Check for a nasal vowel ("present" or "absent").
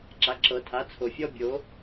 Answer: absent